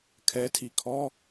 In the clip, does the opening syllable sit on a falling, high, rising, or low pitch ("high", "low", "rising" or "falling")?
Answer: rising